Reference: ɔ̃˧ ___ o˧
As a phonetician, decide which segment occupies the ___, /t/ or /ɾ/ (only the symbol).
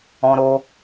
ɾ